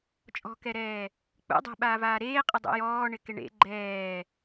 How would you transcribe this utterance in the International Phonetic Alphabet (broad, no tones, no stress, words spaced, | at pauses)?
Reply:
t͡ʃʼɔ̤kɛɾɛː | k͡pṵ dˤɛ̤ɓaːvaː ɾeːqʼɪ dˤṵjɔː ɳɪkɪɳḛ ɡ͡ǃɛː